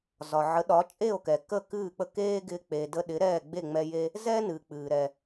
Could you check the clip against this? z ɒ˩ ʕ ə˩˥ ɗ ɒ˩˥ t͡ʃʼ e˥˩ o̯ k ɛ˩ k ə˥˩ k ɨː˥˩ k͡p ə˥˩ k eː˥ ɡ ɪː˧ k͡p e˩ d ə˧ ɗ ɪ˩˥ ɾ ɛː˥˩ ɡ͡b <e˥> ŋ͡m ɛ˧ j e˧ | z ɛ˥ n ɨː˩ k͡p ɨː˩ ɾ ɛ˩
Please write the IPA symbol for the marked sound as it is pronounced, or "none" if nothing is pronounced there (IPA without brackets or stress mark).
e˥˩